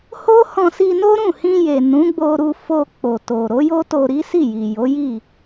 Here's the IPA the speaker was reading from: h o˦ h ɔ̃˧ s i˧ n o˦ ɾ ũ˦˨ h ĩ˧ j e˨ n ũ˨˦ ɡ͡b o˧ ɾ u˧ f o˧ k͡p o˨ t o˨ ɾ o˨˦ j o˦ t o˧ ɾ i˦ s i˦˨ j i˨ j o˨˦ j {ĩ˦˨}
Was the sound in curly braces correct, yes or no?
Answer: no